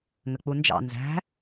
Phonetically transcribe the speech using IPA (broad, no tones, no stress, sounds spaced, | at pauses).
ŋ ə k͡p u n d͡ʒ ɑ̰ n z æ̤